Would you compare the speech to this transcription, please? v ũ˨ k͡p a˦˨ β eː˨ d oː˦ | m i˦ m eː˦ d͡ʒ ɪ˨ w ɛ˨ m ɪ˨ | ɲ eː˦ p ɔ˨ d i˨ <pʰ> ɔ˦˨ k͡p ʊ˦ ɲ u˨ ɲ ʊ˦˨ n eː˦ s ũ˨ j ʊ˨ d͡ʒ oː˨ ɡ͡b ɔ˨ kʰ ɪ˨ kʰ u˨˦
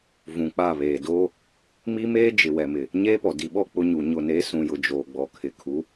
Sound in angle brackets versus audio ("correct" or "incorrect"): incorrect